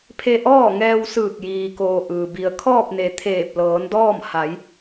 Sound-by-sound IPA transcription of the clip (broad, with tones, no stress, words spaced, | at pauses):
pʰe˧ʔɔː˥˨ŋɛː˧wsɯː˧˩k̚ jiː˩koː˩ ʔɯː˩bi˧ə̯ kʰɔː˥˨p̚ne˩˧ t̪ʰeː˧˩p̚lɤː˩˧ndɔː˥˨m ha˩˧j